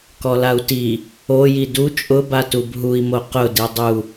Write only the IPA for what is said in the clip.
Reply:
k ɔ l a u̯ t i | o j i d u t͡ʃʼ ʊ b a t u b ɦ u i̯ m o q ʊ d i dˤ u

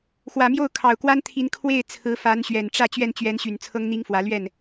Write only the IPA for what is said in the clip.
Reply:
x w ä˨˩ m j o˥˩ ʊ̯ kʰ ɑ˨˩ ʊ̯ k w a˥ n t̪ʰ i˧˥ n kʰ w e˥˩ ɪ̯ t͡sʰ ɹ̩˧˥ f a˧˥ n ɕ ɥ ɛ˨˩ n ʈ͡ʂ ä˥˧ t͡ɕ ɥ ɛ˥˩ n t͡ɕ ɥ ɛ˧˥ n ɕ y˨˩ n t͡sʰ ɤ˥ ŋ n̪ i˥ ŋ f w ä˧˥ l ɥ ɛ˥˩ n

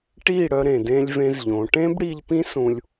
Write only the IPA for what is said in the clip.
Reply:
ʈ i˦˨ ɽ œ˧ ɾ ẽ˨ d ẽ˦ lʲ v ẽ˦ z ʎ õ˨˦ ʈ ẽ˦ b ɽ i˧ ʎ p ĩ˦ s ũ˧ lʲ

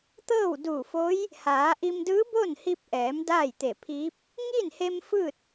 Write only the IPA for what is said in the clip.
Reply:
t̪ ɤː˥˨ w d uː˧˩ f o˧˥ j | h aː˩˧ ʔ i˧ m d ɯː˧˥ b o˥˨ n h i˧ p̚ ʔ ɛː˩˧ m d aː˥˨ j t̪ e˧˩ pʰ iː˧˥ p̚ | ŋ iː˥˨ n h e˧ m f ɯː˥˨ t̚

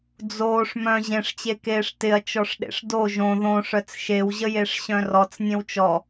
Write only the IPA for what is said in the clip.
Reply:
d͡z oː ʂ m œ̃ ʑ ẽ ʂ t͡ɕ e k eː ʂ t ɪ ɐ̯ t͡ʃ ɔ ʂ ɗ ḛ ʂ d o ʒ õ ð õ ʂ œ t͡s ʃ e w ʑ ə j e ʂ ɕ œ̃ r ɔ t͡s nʲ ẽ w t͡ʃ ɔ

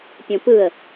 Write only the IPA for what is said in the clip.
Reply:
pʲ õ p ɯ ə̯

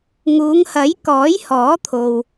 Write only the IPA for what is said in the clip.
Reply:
ŋ uː˨˧ ŋ h ɐ˨˥ j k ɔː˨˥ j h ɔː˨˥ t̪ʰ o˨ w

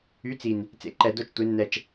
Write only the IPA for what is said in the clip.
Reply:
y˨˥ t͡s i˨˩ n | t͡s ḛ˨˥ ǃ ɛ˧˩˧ d o˧ t͡ʃ tʷ e˩˧ nː ɛ˨˩ t͡ʃ

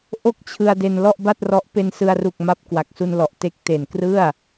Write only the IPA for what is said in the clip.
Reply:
ʔ o˥˩ k̚ t͡ɕʰ ɯ˧ a̯ d e˧ n l ɔ˥˩ ʔ b a˥˩ t̚ r ɔ˦˥ ʔ p e˧ n s ɯ˧ a̯ r u˨˩ k̚ m a˦˥ p̚ k w a˨˩ k̚ s u˧ n l ɔ˨˩ ʔ t e˦˥ k̚ t e˨˩ n k r ɯ˥˩ a̯

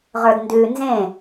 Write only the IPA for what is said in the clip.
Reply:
ʁ ə˞ d n d ʉ n z ẽ

